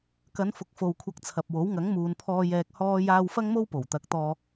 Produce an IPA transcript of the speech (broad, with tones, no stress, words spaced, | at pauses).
kɐ˨˧nfʊ˨k̚ fo˨wkʷʰɐ˧k̚t͡sʰɐ˨p̚wo˨˥w ŋɐ˨˥ŋmuː˨npʰɔː˧ jɛː˧k̚hɔː˥jaː˥w fɐ˥ŋmo˥w po˨˩wt̪ɐ˨˥k̚t̪ɔː˧